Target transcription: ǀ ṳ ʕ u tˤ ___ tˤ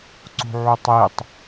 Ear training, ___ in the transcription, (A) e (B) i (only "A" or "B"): B